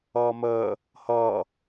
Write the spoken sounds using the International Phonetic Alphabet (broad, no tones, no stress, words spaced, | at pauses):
ʌːməː | hʌː